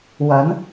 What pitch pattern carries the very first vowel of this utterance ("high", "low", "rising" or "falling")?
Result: rising